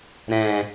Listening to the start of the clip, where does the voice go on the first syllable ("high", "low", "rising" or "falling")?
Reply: low